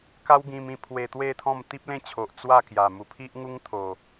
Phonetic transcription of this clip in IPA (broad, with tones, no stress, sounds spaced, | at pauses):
k a˦ w ɡ ĩ˧ m ĩ˧ pʰ w e˧ t̪ w e˥˧ t̪ʰ ɔ̃˥˧ m t̪ i˦ p̚ l ẽ˦ t͡ɕʰ o˨ ʔ t͡s w a˥˧ k j a˨˩ m u˨˩ pʰ i˦ ʔ ŋ u˦ ŋ t̪ʰ o˨˩